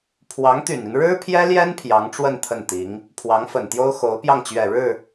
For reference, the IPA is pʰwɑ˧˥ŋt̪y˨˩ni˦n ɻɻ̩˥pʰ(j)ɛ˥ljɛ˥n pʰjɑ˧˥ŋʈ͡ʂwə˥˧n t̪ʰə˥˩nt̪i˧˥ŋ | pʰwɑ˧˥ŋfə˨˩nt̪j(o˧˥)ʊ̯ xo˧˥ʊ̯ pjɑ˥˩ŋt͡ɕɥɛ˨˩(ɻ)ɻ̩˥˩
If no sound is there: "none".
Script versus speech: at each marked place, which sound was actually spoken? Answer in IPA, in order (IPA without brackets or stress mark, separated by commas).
j, o˥, ɻ